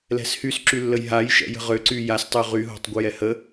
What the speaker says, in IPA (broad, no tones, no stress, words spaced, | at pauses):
lɛ̤shysǁylːəj ɦajʃɛ̰ jə̤ʁøǀy jastˤø ʁyɦo̤tˤ ɡʷəjɛhə